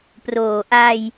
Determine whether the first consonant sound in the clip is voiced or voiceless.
voiceless